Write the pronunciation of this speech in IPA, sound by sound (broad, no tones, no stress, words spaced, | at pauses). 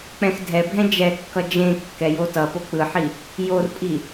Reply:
k͡pɛ̃xdʱɛbʱɛ̃ d͡ʒɛkːʌ d͡ʒẽ kːɛjotʌpo k͡pɯħi | jorpʼi